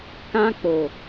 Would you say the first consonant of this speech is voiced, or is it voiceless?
voiceless